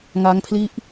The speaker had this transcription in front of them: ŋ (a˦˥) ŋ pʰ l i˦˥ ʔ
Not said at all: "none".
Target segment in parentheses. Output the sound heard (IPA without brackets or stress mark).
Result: a˦˥